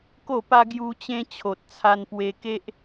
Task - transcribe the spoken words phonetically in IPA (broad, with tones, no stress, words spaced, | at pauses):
ko˥˧pa˦ ɡju˦t͡ɕẽ˦ t͡ɕʰo˨t̚t͡sʰa˧npwe˧ke˦ʔ